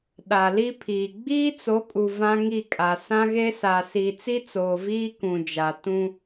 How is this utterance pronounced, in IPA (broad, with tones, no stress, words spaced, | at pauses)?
ɗa˨li˦pʰiː˨ ɡ͡biː˦t͡so˨˦kʼu˨ vã˦ŋi˦˨kʼa˨ sã˦ɣe˦sa˨ siː˨t͡si˦t͡soː˨ viː˦kũ˨d͡ʒa˨ tũ˦